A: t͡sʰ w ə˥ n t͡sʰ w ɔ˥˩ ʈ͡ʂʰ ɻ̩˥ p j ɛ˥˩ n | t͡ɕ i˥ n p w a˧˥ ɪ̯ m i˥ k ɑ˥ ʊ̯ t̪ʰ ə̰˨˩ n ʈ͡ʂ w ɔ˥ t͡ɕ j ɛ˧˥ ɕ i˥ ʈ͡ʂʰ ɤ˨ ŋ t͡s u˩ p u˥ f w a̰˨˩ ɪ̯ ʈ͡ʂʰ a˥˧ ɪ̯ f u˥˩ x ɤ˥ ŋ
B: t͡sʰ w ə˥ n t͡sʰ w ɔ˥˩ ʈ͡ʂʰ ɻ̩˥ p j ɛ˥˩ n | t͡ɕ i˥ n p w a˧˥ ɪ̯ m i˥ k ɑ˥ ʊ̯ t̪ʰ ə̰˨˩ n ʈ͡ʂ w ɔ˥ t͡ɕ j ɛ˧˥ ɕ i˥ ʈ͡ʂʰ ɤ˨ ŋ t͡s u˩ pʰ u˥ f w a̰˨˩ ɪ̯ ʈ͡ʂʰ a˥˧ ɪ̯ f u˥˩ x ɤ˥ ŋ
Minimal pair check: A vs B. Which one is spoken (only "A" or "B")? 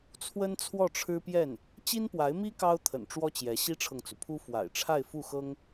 B